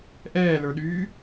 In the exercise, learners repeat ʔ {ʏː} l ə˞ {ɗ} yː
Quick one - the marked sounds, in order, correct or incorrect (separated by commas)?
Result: incorrect, correct